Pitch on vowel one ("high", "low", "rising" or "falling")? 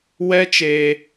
high